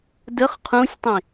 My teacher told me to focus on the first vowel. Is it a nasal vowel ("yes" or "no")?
no